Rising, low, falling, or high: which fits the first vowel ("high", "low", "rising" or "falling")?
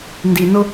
low